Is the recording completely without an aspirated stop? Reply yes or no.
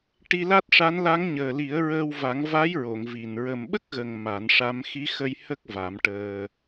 yes